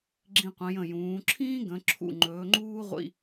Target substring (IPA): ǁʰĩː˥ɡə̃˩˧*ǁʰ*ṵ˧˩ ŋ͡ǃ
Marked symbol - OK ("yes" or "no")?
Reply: yes